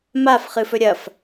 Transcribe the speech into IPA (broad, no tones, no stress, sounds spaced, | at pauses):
m a f χ ɨ f ɵ ɾʲ ɐ f